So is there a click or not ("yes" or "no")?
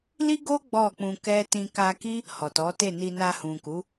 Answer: no